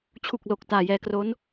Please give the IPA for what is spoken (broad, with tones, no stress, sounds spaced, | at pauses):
t͡ɕʰ u˨˩ k̚ l o˨˩ k̚ t aː˨˩ j ɛː˧ k r o˦˥ n